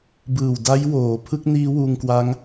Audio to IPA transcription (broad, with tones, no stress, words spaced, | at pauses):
bɯː˨˩wda˦˥jwoː˩˦ pʰɯ˦˥k̚niː˦˥ wuː˧ŋkwa˦˥ŋ